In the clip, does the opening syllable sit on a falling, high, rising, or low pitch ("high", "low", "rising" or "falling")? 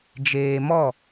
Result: low